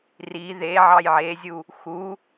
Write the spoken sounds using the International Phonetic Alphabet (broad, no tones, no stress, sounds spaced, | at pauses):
r i ð e ʕ ɑ j ʕ e zʲ u | x u